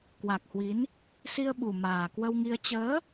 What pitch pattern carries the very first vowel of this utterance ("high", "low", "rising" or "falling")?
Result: low